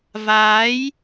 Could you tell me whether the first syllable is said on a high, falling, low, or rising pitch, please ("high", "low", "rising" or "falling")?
rising